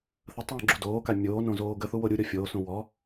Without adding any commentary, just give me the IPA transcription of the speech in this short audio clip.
θ ə tˤ w ɔ̃ ɡ͡ǁ u d oː k a mʲ oː n õ z oː ɡ ə θ u w o ɾʲ u ɾʲ ɔ fʲ oː s ũ w ɔ

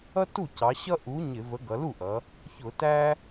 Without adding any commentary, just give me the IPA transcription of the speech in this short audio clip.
ʌ˥ t u˥˩ c ɑ˩˧ ɕ ʌ˥ ʔ u˨˥ ɲ ɪ˧˩˧ v ə˨˥ ɡ ʌ˩˧ l u˥˩ ʔ ʌ˩˧ | ç ʊ˧˩˧ t æ˥

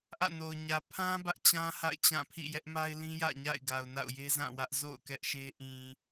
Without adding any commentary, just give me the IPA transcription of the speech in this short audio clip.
ʔ ä̰˦˨ n o˨ ʊ̯ ɲ ä˨ pʰ ã˦ b ä˦ ʔ t͡ɕ ã˦ h a̰˦˨ ɪ̯ t͡ɕ ã˦˨ pʰ ḭ˦˨ j ɛ˦ ʔ m a˦ ɪ̯ l ĩ˦ j ä̰˦˨ ɲ a̰˦˨ ɪ̯ ɡ a˨ ʊ̯ n a̰˦˨ ʊ̯ j e˦ z ã˦˨ w ä˦ ʔ z o̰˦˨ ʊ̯ k ɛ˦ ʔ ʃ e˦ ʔ ĩ˨

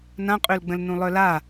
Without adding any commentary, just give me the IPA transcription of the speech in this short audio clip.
n ã qʼ ø l ɡ͡b ə̃ l n ũ lˠ œ l a

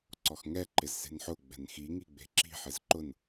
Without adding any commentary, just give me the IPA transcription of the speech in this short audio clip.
ǀ ɔ x ŋ ɛ ǃ ɪ z s e̤ n ħ ʊ ɡ͡b ɛ̤ n x i ŋ i ɡ͡b e̤ ǁ i̤ ħ ɪ z ǃ ʊ n

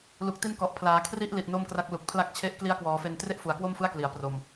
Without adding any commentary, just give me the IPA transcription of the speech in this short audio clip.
l u˨˩ k̚ t i˦˥ n k ɔ˨˩ ʔ pʰ l aː˩˦ kʰ r i˥˩ ʔ l i˨˩ t̚ n o˥˩ m k r a˦˥ k̚ l u˨˩ k̚ pʰ l a˦˥ k̚ t͡ɕʰ e˦˥ ʔ k l i˦˥ a̯ k w ɔː˩˦ f e˧ n t r e˥˩ ʔ f u˩˦ a̯ k w o˥˩ m f ɯ˥˩ a̯ k l i˩˦ a̯ p r o˨˩ m

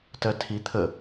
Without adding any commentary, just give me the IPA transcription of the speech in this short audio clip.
t ɜ tʰ i t̪ʰ ə

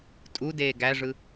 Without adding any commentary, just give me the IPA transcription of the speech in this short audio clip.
tʼ u d eː ɡ æ ʐ ɯ

